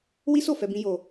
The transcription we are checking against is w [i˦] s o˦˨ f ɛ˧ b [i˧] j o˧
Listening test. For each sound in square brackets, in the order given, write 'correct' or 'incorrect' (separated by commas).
correct, incorrect